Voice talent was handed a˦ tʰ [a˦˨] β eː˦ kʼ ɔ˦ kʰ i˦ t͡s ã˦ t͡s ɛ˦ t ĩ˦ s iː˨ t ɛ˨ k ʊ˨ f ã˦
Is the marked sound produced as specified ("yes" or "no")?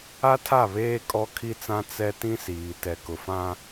yes